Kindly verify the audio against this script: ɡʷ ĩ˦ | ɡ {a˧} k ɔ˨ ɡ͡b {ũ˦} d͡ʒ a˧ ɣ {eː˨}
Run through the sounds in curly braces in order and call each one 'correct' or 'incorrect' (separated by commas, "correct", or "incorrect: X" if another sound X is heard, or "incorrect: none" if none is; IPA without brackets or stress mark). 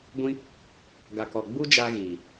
incorrect: a˨, incorrect: u˦, incorrect: iː˨